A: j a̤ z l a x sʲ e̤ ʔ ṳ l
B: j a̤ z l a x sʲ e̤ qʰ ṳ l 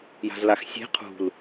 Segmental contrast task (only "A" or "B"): B